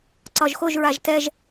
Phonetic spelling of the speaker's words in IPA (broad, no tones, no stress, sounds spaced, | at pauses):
ǀ ɒ ʒ x o ʒ ɹ a ʒ t ɛ ʒ